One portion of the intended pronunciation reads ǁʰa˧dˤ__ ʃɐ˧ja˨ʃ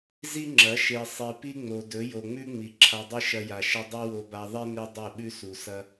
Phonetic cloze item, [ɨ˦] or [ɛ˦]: ɨ˦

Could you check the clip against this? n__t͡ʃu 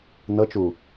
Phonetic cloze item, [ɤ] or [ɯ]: ɤ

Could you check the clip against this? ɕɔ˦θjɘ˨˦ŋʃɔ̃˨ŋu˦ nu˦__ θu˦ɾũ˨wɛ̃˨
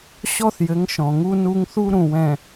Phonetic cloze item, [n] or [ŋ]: ŋ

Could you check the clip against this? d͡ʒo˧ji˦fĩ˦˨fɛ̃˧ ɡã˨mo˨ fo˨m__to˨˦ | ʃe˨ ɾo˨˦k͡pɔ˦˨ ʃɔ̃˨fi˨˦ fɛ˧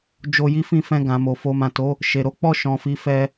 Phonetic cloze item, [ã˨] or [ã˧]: ã˨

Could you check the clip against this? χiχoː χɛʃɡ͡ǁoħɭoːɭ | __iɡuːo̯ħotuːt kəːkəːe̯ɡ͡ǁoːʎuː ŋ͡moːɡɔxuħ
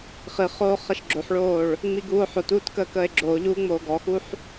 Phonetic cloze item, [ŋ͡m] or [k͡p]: ŋ͡m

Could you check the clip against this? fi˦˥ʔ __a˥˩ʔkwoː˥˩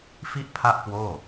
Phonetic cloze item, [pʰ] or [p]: pʰ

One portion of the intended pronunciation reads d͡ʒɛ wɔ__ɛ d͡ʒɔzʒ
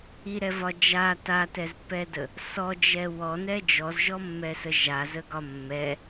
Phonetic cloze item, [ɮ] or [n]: n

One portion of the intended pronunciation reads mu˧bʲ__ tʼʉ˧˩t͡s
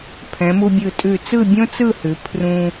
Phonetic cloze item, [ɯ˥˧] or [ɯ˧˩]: ɯ˧˩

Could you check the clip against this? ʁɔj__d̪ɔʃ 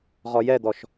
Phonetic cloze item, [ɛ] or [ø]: ɛ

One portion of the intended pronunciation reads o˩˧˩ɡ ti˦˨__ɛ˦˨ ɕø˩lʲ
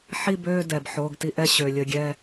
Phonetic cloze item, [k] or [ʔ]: ʔ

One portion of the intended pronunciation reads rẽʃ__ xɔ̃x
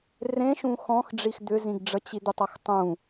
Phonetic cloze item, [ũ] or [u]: ũ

